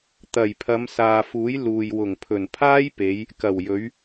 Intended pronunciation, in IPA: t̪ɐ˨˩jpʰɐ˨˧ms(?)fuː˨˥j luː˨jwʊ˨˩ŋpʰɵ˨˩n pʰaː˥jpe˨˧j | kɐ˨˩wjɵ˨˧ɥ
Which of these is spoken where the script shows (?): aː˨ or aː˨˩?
aː˨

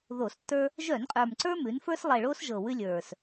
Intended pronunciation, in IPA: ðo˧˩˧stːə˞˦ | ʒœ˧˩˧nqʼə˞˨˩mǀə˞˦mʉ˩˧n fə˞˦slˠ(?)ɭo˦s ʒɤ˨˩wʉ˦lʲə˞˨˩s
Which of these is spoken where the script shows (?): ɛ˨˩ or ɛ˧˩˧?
ɛ˨˩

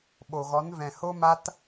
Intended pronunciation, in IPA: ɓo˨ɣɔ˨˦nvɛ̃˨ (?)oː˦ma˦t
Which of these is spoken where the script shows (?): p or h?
h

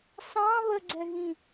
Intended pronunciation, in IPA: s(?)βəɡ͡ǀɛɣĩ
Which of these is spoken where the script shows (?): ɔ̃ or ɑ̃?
ɑ̃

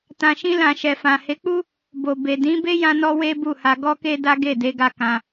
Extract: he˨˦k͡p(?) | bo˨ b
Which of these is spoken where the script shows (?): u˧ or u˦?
u˦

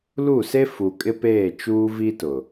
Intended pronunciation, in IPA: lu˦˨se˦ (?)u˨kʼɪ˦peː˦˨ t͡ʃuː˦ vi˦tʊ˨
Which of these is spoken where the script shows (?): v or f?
f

